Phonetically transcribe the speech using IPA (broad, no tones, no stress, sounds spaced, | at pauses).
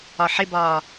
ɒ ħ ɪ b ɒː